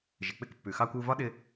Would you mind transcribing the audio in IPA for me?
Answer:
ʒ ɪ˩ k͡p ɪ˧ k pː ʉ˩ x ɑ˧ kʷ u˧ v ɒ˥ ɗ ɪ˧

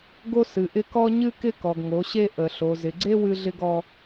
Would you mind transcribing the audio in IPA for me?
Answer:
ɡ o˦ s ɨ˨ ʔ ɪ˦ k ɔ˦ ɲ ɨ˦ k ɪ˦ k ɔ˨ ɡ ŋ o˨˦ ɕ e˦ ʔ ə˨ ɬ o˨ z ɪ˨ ɡ͡ǀ e˦ w ɨ˦ ɮ ɪ˦ ɡ ɔ˦

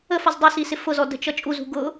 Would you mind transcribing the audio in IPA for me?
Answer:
ə f ʌ z dˤ ə s i s ɪ f ʊ z ɔ d ə̤ t͡ʃ ʌ t͡ʃʼ u z ṳ ɡ ʊ

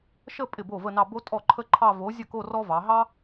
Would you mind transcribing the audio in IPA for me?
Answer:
ʃ ə˥˧ pʼ ɪ˥˩ b o˥˩ v ə˥˧ n ɑ˥˧ b o˥ tʼ ɔ˥˩ ǃʰ ə˥ ǃʰ ɑ˥˧ v o˨˥ zʲ ə˥˩ k o˥˧ r ɔ˥ v ɑ˩˧ ɦ ɑ˥

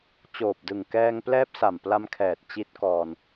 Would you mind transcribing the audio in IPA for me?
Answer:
t͡ɕ oː˨˩ p̚ d ɯ˨˩ ŋ k ɛː˧ ŋ p l ɛː˦˥ p̚ s a˨˩ m p l a˧ m kʰ ɛː˨˩ t̚ t͡ɕ i˦˥ t̚ k ɔː˧ n

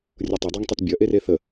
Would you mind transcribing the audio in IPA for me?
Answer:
rʲ ʊ tˤ ə dˤ ɑ ŋ tˤ e t bʲ ɐ ʔ e r e θ ə

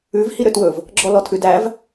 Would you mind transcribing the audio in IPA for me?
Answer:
ʉ v h i ɾ ø t w ɵ v | ɡ͡ǁ ɔ l ɔ tʰ ʉ d æ v

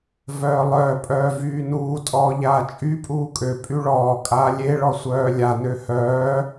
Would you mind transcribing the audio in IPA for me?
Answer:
v œː lˠ œː pʼ œː v yː n uː tʼ ɔː ʎ aː t͡ʃʼ y pʼ uː kʼ ø pʼ y ɭ ɔː kʼ aː lʲ e ɭ ɔ sʷ œː lʲ a n ø h œː

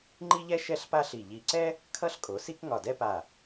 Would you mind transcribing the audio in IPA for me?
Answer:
ŋ͡ǃ i˥ ʎ ɛ˥ ʃ ɛ˥˧ ɬ p a˥ ɬ i˧˩ ʎ i˧˩ ǀ ɛ˥ | kʰ ʌ˥ ɬ kʼ o˩˧ s i˥ k ŋ ɒ˧˩ d ɛ˥ p a˧˩

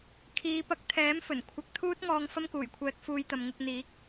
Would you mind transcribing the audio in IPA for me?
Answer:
kʰ iː˨˧ p ɐ˨˥ k̚ t̪ʰ ɛː˨˥ m f ɵ˨˩ n kʷʰ ɐ˧ k̚ t̪ʰ uː˥ t̚ ŋ ɔː˧ ŋ f ɐ˥ m k uː˨˩ j kʷʰ ɛː˧ k̚ f uː˧ j t̪ ɐ˨ m ŋ ɪ˧ k̚ n̪ iː˨˥ k̚

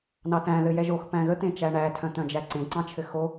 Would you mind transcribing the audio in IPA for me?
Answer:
n ɑ θ æ̃ ð ɘ j ɛ ʒ o x p æ̃ ɣ ə t̪ ẽ t͡ʃ æ ɳ æ tʰ œ̃ t̪ œ̃ d͡ʒ æ ǀ ẽ ǀ ɑ̃ t͡ʃʰ ɘ x o

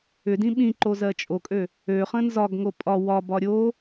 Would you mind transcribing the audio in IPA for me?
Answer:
ʏ d ĩ ɓ ĩ ǃ o z ɜ t͡ʃʼ o kʼ ø | ø χ ə̃ n z ɒ ɡ ŋ o pʼ ɒ w ɒ b ɒ ɾʲ o

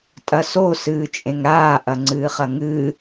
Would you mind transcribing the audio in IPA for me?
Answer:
tʼ ɐ s o s ɨː t͡ʃʼ ẽ ŋ ɾ aː ʔ ɐ ŋ͡ǀ ɨː χ ɐ ŋ ɨː

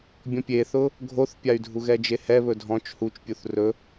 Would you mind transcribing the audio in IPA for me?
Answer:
bʲ ɔ̃ pʲ e θ ʊ | ɡʱ o θ pʲ a y̯ dʱ u ɣ ɛ d͡ʒ e h ɛ β ɵ dʱ ɔ̃ t͡ʃ h u t͡ʃ pʲ u θ r ɵ

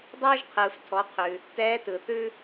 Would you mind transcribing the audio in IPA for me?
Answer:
dˤ ɤː˧ ʒ qʰ ɯː˩ f tʰ ɔ˩˧ qʰ ʉ˩ | t ɛː˧˥ t ɯ˩ θ ʉ˥

